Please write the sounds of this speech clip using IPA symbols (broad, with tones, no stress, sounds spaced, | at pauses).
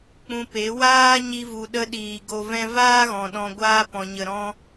k͡p ũ˧ p e˨˦ w aː˦ ɲ i˧ v u˨ ɗ ə˧ ɗ iː˨ ɡ o˧ v ɛ̃˦ v aː˦ ɣ ɔ̃˨ ɗ ɔ̃˧ ɡʷ aː˦ p ɔ̃˨ ɲ ə˨ ɾ ɔ̃˧